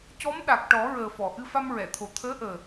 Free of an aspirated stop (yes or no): no